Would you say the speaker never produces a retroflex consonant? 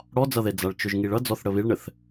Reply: no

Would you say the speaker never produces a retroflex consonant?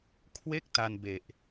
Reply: yes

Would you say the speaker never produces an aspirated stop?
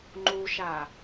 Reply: yes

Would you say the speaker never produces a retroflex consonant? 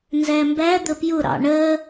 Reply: no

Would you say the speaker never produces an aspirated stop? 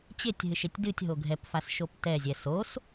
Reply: yes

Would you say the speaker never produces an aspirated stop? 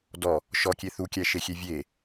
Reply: yes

